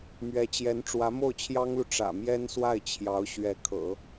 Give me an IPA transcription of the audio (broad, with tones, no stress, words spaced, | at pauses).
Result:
mɥɛ˧˥t͡ɕjɛ˧˥n ʈ͡ʂwä˧˥mo˥˩ʊ̯t͡ɕʰjɑ˥ŋlu˨ ʈ͡ʂä̰˨˩mjɛ˥nswa˥˩ɪ̯ t͡ɕʰjɑ˧˥ʊ̯ɕɥɛ˧˥ kʰɤ̰˨˩˦